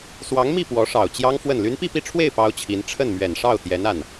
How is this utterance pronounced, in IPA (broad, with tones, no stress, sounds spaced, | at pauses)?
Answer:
s w ɑ˧˥ ŋ m i˥˩ p w ɔ˧˥ ʂ ɑ˨˩ ʊ̯ t͡ɕ j ɑ˥ ŋ f w ə˥˩ n l y˧˥ n p i˥˧ p i˥˧ ʈ͡ʂʰ w e˥˩ ɪ̯ p ɑ˥ ʊ̯ t͡ɕʰ i˧˥ n ʈ͡ʂʰ ə˥˩ n m ɥ ɛ˨˩ n ʂ ɑ˥˩ ʊ̯ t̪ j ɛ˧˥ n a˥˩ n